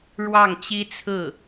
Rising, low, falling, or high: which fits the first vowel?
falling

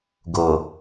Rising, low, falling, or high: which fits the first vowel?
low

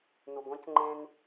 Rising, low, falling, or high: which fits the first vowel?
low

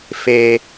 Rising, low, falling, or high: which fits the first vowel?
low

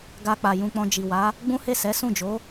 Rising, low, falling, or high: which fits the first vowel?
high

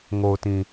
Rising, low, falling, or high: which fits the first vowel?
low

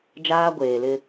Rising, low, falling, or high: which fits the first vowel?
high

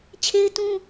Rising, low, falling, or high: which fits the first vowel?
high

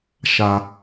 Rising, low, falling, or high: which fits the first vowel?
high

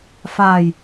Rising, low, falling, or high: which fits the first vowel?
low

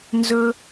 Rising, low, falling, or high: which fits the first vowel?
high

